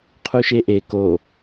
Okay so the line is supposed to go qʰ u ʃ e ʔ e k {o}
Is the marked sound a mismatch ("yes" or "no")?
no